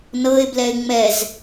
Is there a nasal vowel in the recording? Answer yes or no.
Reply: no